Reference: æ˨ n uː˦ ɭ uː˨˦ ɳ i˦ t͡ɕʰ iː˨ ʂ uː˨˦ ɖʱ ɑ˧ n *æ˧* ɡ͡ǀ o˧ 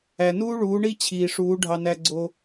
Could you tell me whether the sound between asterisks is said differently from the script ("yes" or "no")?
no